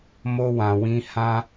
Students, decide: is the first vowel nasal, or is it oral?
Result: oral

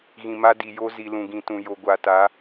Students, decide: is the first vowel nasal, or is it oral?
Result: nasal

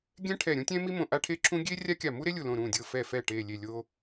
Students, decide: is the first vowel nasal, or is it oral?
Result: nasal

